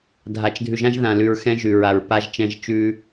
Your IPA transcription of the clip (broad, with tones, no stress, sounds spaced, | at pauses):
dʱ a˨ t͡ʃ dʱ ʉ˨ ʒ ã˦ ʒ ð ã˨ l ʉ˨ ɹ x ɛ̃˦ ʒ ʉ˨ ɹ a˨ ɹ p a˦ ʒ t͡ʃ ɛ̃˦ ʒ t͡ʃ ʉ˦